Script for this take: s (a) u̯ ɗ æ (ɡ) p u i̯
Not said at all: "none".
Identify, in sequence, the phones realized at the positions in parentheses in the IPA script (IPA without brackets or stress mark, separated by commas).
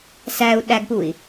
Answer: æ, ɡ